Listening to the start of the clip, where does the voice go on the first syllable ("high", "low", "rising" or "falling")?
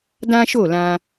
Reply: high